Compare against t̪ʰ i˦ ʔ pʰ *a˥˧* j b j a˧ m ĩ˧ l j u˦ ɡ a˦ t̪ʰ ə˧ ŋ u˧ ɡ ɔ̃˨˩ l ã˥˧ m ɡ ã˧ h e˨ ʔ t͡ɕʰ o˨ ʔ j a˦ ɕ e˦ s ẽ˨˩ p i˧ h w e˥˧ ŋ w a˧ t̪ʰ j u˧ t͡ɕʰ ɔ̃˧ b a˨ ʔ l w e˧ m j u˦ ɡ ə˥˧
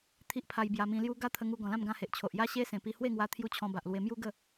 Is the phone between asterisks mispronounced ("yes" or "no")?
yes